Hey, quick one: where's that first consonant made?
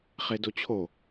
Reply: uvula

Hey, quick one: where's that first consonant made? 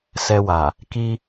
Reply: tongue tip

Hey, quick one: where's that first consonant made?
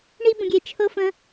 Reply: retroflex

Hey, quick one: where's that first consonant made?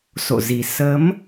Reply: tongue tip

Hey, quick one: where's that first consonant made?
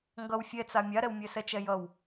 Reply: velum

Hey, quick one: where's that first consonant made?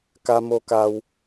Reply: velum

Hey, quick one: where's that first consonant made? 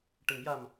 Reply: retroflex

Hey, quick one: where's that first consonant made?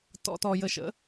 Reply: tongue tip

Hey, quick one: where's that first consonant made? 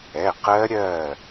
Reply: uvula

